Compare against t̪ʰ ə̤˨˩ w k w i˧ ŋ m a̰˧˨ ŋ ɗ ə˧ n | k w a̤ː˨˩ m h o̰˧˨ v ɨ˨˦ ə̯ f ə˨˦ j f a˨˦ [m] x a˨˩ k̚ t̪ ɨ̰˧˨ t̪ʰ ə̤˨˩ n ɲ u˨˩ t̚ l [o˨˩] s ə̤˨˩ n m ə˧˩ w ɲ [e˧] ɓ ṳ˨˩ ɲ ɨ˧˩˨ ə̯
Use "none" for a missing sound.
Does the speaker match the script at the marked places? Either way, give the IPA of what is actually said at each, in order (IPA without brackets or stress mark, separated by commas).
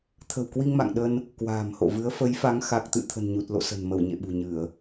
ŋ, o̰˧˨, ḛ˧˨